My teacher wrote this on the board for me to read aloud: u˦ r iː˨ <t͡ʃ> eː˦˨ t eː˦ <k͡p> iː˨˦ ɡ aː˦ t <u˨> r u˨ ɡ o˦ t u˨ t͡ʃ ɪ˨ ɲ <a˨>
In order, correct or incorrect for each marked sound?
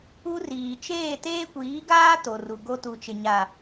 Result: correct, incorrect: kʷ, incorrect: o˨, correct

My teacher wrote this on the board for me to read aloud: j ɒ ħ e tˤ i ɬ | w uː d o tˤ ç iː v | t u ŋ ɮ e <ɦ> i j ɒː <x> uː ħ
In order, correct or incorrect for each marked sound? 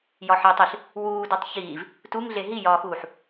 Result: correct, correct

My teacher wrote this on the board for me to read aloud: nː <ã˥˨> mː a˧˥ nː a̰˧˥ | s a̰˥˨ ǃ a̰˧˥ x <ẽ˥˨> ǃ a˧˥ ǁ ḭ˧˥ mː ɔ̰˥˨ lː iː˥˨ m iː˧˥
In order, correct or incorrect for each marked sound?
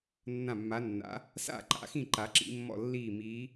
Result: correct, incorrect: ĩ˥˨

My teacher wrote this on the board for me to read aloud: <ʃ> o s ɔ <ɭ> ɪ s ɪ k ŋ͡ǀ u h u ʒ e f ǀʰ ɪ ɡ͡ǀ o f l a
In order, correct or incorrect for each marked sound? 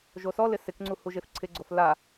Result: incorrect: ʒ, incorrect: l

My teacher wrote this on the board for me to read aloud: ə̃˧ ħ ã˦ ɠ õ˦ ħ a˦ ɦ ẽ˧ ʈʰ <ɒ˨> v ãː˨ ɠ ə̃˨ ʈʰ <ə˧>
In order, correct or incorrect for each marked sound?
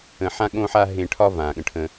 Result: incorrect: ɒ˦, incorrect: ə̃˧

